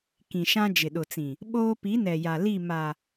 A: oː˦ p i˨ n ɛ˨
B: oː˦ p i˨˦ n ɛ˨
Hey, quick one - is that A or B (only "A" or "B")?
B